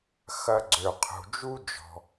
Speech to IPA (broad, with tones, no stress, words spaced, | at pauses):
xɐ˨ ɡ͡ǀø˩ qʰṳ˩d͡ʒu˥ d͡ʒɔ̤˩